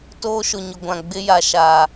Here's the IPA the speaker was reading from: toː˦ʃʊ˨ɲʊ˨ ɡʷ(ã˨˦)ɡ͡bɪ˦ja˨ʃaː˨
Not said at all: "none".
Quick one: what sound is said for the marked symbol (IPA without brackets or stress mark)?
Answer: ã˨